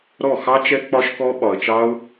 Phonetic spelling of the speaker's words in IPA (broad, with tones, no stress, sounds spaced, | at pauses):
ɾ ɔ˦˨ x ɑ˧ t͡ʃ ɛ˧ k͡p ɒ˧ ʃ k ɔ˧ ɓ ɒ˨ ə̯ t͡ʃ ɑ˧ ʊ̯